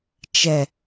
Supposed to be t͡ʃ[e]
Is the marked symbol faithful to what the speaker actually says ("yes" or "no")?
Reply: no